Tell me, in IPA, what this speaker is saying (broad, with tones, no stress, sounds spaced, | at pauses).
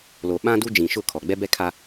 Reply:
l oː˨ ɓ ã˦ d u˦ d͡ʒ ĩ˨ ʃ ʊ˦˨ kʰ ɔ˨ ɡ͡b ɛ˦ b ɛ˦ kʰ a˦